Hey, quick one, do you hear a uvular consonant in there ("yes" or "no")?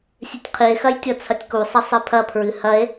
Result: yes